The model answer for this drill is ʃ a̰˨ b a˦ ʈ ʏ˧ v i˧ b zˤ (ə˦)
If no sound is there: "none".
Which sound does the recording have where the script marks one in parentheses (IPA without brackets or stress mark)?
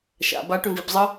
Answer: ə˦